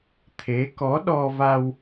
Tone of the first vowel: rising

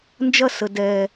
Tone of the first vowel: falling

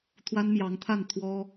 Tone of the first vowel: high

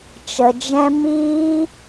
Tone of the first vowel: low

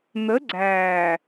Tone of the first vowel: rising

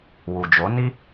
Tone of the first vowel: low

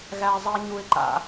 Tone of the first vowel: high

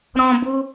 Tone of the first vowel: high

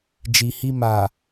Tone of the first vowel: low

